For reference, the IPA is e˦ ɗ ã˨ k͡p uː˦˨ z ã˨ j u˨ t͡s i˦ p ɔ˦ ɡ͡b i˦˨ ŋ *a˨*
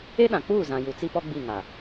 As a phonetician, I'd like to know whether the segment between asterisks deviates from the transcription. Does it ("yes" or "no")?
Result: no